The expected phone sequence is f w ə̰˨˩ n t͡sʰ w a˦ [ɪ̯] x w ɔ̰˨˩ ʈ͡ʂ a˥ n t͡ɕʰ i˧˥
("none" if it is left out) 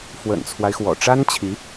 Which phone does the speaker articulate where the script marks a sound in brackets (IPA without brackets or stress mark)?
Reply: ɪ̯